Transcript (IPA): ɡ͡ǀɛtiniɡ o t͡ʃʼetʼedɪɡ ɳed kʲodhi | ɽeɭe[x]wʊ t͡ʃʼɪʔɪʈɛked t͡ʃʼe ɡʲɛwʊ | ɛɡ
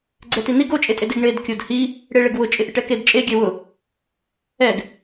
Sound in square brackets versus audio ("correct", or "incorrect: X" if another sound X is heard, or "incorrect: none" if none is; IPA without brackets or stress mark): incorrect: ɡ